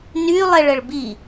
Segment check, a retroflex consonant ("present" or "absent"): present